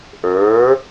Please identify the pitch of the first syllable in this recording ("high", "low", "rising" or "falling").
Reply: rising